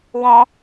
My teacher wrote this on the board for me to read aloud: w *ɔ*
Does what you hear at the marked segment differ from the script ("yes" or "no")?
yes